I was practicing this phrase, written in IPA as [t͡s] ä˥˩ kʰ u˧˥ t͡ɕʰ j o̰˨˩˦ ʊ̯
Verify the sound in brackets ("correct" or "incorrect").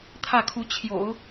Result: incorrect